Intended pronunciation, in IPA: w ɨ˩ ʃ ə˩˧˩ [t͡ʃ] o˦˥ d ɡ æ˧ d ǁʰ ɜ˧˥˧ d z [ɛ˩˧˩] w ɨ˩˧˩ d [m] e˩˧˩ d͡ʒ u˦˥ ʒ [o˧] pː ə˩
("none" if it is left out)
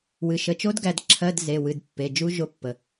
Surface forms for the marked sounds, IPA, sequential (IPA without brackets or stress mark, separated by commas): t͡ʃ, e˩˧˩, pː, o˧